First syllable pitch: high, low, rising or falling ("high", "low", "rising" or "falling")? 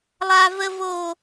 high